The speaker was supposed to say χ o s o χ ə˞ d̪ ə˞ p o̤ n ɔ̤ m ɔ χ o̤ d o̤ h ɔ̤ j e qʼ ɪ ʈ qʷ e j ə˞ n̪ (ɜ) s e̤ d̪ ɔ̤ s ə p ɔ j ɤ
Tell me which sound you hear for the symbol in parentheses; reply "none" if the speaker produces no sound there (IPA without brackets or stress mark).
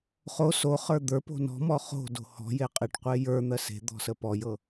ɜ